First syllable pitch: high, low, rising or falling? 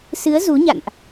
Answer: rising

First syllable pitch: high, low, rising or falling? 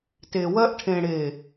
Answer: low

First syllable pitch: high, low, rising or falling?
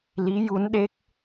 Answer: rising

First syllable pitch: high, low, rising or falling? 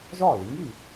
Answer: falling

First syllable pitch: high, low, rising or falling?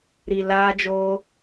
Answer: low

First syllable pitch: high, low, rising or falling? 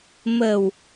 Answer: low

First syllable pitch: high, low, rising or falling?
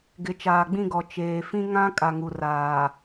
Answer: rising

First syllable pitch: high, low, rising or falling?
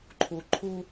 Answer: low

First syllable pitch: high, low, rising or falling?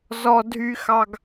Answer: high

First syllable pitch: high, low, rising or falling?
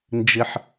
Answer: high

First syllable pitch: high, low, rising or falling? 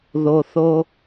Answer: low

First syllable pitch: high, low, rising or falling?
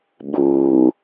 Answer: low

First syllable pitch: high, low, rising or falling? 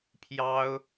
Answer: high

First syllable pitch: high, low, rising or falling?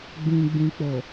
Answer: low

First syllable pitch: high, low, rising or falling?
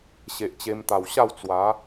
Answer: low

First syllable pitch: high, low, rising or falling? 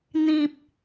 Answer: high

